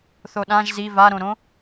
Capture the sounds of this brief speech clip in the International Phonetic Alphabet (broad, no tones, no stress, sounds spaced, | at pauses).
θ o ɗ ã ʒ z i v a ɾ õ ɾ õ